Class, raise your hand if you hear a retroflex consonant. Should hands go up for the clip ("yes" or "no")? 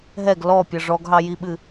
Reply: yes